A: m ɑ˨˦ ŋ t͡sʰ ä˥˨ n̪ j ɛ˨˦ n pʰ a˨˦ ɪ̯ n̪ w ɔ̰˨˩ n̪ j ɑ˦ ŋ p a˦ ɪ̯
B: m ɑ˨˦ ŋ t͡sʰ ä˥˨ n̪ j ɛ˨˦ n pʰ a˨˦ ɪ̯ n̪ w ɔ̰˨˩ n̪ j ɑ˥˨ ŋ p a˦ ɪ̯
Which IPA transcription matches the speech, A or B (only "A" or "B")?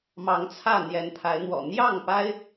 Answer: B